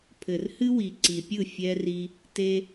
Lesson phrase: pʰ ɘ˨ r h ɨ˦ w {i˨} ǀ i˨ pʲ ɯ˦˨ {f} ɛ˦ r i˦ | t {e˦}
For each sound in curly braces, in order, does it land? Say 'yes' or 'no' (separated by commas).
yes, no, yes